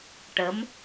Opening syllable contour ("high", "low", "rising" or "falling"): rising